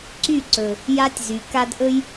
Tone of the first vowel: falling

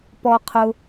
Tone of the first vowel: low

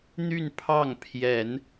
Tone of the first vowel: falling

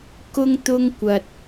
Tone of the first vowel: high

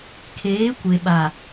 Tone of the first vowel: rising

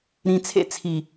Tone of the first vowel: low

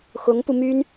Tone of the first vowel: rising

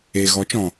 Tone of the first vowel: low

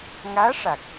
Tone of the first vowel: rising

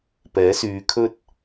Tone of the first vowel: rising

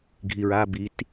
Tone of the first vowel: low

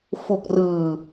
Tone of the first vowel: low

